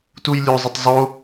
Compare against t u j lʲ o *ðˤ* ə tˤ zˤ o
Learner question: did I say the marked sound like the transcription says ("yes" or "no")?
no